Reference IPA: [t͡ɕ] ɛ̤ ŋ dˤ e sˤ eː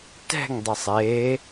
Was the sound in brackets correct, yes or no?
no